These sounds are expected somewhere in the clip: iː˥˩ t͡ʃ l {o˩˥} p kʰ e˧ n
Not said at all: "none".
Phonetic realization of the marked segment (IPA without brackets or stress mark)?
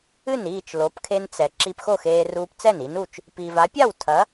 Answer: o˩˥